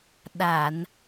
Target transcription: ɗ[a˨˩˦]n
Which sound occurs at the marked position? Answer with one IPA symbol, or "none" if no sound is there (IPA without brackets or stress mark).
a˨˩˨